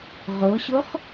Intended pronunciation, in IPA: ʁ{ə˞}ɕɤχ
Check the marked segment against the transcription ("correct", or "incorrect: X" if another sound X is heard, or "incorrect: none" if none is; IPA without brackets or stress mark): incorrect: ɤ